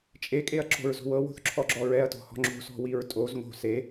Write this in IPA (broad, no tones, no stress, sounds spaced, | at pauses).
t͡ʃʼ e kʼ e ɐ̯ ǁ o̤ ɹ z o̤ w ɤ w o̤ θ ǁʰ ɔ ɡ͡ǁ ɔ ɹ ɛ ɐ̯ t ɔ̤ h ɔ̤ ŋ͡ǁ o̤ s ɔ̤ w i ɹ tʼ o z ŋ o̤ s e